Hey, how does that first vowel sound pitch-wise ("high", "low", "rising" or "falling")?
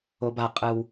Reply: low